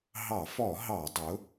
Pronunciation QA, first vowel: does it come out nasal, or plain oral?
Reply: oral